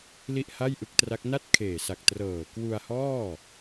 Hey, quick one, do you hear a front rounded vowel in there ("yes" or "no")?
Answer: no